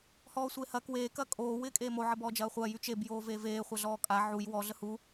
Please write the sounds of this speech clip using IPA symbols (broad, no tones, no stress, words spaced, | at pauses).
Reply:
hɔːsʷeːhɐːk weː kɐkʼoː wɪːkʼeːmo ʕəbɔːd͡ʒɐːχʷɐː jyt͡ʃeb joːveːveː χʷaɮɔːkʼa ʕuj wɔ ɮəhu